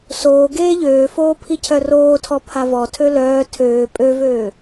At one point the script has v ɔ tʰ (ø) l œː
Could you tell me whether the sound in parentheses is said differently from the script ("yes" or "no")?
no